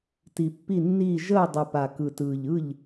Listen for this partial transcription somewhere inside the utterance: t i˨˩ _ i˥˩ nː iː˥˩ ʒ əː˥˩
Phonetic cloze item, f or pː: pː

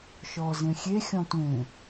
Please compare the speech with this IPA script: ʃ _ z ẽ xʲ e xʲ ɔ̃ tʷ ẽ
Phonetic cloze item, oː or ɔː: ɔː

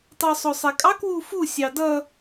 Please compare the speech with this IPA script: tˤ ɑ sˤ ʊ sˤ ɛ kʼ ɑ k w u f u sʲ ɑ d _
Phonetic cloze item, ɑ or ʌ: ʌ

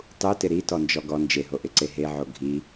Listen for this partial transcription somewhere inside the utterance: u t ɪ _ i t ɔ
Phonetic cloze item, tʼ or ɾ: ɾ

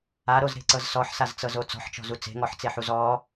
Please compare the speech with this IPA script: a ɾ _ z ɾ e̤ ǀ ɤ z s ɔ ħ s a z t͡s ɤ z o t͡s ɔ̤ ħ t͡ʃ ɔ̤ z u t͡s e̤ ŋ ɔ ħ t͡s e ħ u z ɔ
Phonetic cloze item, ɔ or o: o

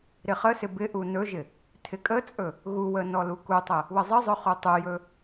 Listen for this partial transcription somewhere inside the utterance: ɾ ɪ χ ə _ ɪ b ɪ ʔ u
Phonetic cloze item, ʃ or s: s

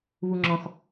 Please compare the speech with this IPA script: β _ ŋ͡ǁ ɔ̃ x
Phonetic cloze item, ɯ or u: u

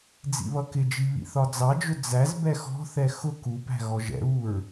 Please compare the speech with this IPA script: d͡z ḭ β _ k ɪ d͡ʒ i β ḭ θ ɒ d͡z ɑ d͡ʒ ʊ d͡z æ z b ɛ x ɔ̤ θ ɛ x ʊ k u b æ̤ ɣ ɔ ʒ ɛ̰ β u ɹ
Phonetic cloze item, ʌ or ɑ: ʌ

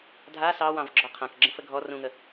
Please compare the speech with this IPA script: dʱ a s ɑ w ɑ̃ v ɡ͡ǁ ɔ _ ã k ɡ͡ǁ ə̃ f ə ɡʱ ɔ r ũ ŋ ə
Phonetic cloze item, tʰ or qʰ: qʰ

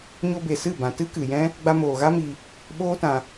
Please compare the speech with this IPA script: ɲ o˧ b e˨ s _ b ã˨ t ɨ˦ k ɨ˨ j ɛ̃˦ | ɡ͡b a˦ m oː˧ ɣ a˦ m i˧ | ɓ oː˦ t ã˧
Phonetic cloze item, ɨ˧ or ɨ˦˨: ɨ˦˨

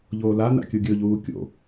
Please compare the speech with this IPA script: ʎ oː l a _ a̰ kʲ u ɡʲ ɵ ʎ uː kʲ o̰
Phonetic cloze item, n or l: n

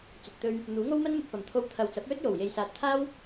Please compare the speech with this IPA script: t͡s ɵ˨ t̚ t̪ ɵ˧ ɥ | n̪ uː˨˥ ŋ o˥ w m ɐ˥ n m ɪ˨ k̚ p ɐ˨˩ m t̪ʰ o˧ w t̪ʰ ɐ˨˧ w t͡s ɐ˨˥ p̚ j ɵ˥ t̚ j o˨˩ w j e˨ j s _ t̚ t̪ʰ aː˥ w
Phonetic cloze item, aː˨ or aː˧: aː˨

